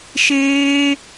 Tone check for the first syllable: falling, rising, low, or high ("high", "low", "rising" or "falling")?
high